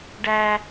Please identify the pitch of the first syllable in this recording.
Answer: high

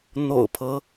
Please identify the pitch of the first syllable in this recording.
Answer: low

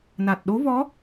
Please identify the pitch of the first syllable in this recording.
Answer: low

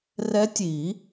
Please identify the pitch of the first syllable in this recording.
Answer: rising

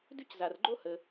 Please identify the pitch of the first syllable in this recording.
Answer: high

